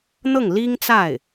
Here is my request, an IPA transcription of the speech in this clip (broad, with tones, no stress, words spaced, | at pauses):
n̪ɤ˥˩ŋli˥ŋt͡sa˥˩ɪ̯